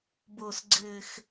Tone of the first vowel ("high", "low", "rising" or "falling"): low